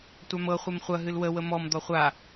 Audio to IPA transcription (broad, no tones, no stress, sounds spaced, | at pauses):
tʷ a m ɤ χʷ e m χʷ ɐ ɦ ɨ l w ə w ə m ɔ m d̪ ɔ χʷ a